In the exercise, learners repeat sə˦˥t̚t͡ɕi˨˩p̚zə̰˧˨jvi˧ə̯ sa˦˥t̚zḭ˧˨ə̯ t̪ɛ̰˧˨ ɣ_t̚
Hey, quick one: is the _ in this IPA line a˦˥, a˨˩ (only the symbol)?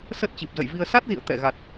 a˨˩